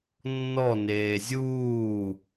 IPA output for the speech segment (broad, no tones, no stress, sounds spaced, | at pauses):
nː ɔ n eː zʲ uː